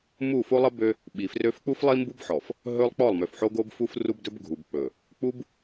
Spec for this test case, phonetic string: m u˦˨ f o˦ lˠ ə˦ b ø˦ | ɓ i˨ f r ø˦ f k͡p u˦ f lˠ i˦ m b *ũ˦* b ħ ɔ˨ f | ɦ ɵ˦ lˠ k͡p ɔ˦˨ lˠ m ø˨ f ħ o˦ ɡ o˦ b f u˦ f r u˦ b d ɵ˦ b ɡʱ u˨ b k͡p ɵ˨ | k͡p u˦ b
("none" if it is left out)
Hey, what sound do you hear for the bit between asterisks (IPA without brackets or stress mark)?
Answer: u˦